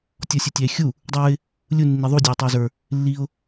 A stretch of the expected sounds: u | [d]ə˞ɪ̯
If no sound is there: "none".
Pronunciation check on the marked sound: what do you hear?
dˤ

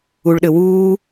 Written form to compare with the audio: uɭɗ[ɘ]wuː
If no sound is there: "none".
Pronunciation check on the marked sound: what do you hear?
ɘ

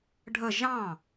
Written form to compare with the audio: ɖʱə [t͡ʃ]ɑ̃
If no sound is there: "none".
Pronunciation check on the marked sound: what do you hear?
ʒ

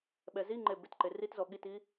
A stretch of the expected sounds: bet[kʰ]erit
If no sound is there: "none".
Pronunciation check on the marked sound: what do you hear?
ǃ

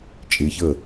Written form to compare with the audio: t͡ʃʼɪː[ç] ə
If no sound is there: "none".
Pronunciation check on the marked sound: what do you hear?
ç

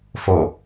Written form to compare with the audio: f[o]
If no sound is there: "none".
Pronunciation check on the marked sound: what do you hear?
o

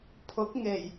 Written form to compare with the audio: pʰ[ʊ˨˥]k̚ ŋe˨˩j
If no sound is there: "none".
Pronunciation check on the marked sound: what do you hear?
ʊ˨˥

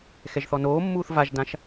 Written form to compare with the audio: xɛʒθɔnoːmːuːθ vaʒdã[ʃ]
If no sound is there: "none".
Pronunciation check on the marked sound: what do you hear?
ʃ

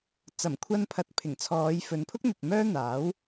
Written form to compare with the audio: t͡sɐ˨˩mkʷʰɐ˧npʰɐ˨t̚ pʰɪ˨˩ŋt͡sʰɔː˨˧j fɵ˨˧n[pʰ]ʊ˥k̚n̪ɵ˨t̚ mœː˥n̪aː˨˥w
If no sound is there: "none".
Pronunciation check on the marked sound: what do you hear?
pʰ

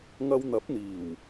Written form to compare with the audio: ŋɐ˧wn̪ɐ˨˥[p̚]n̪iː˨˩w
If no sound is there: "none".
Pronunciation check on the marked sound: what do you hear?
p̚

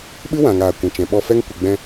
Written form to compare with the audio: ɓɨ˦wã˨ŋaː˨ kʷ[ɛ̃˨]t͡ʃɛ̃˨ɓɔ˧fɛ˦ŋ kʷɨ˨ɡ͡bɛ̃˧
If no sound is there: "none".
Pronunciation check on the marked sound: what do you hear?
ɛ̃˨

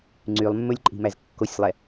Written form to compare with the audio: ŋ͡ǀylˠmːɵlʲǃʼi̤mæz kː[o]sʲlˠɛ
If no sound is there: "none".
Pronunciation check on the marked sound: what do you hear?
o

